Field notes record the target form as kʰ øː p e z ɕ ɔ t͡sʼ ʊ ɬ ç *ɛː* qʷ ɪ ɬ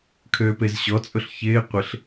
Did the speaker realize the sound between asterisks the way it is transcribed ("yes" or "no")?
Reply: no